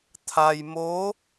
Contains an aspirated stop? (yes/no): yes